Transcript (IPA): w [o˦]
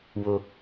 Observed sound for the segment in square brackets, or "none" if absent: o˦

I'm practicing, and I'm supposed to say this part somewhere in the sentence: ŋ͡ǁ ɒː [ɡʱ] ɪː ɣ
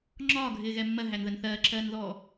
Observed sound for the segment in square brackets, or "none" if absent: ɡʱ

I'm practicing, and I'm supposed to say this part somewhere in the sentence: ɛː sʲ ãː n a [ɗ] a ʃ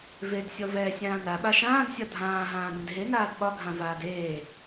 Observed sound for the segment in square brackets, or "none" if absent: ɓ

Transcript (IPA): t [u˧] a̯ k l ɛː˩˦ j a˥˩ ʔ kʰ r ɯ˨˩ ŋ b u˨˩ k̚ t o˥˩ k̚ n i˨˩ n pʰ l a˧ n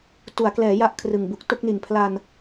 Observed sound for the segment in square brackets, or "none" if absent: u˩˦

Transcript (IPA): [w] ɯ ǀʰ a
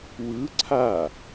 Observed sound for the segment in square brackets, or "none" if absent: w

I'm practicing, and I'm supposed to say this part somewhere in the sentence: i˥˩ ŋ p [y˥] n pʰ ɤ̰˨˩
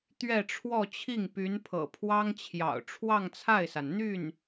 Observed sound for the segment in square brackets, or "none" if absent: y˧˥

